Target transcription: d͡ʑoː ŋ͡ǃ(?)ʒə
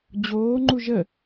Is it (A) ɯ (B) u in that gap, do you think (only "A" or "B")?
B